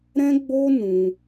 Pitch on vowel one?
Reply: high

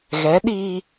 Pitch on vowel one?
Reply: rising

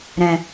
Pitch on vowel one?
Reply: low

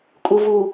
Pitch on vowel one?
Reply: low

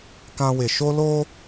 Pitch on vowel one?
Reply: high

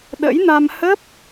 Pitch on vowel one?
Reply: rising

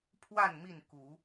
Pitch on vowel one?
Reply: falling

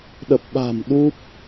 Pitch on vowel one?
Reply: low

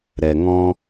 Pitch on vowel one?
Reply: low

